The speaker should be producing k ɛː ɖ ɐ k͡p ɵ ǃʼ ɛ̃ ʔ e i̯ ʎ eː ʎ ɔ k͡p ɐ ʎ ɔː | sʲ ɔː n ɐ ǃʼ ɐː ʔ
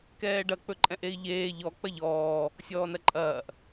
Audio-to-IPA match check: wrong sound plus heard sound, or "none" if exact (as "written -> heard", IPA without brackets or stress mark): none